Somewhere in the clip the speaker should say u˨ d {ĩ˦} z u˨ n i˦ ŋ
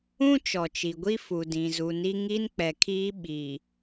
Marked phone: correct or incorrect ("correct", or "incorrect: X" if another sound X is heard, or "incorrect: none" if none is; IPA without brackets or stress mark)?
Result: incorrect: ĩ˨